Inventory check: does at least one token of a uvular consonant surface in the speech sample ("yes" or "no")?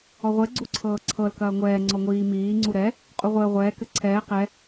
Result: yes